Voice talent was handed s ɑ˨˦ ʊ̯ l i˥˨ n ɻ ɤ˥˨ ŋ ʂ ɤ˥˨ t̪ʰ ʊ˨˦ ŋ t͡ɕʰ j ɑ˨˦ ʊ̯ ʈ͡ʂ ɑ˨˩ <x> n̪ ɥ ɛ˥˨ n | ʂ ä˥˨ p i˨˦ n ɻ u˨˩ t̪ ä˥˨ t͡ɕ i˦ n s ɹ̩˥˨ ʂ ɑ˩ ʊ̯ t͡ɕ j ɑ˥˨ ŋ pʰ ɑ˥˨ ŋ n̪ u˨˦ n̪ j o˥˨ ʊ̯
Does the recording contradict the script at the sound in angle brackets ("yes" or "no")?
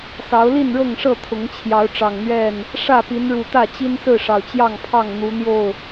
yes